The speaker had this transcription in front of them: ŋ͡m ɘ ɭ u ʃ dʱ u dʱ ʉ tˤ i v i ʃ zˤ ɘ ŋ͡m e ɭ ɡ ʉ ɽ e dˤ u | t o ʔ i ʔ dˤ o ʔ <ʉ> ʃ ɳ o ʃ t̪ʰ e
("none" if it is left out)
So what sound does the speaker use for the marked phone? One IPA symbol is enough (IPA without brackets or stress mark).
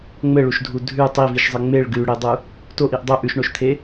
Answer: ʉ